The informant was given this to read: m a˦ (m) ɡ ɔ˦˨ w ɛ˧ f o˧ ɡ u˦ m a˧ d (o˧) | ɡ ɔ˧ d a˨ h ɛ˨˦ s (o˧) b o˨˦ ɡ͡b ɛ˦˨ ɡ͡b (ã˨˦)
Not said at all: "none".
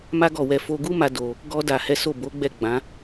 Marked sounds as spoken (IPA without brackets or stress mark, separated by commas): none, o˧, o˦˨, ã˨˦